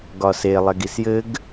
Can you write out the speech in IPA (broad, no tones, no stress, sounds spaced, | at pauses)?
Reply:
ɡ ɒ s e lˠ ɛ ɡ i s j ɘ ɡ